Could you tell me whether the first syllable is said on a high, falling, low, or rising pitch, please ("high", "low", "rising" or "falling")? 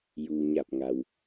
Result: low